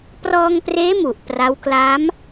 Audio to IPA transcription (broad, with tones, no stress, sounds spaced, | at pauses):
p r ɔː˧ ŋ p r eː˦˥ m u˨˩ ʔ p r a˦˥ w k l a˦˥ m